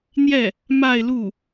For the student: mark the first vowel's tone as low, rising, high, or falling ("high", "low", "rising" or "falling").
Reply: falling